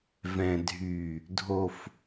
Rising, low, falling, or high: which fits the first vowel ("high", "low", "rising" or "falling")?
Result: low